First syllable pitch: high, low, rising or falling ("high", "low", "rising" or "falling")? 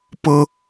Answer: high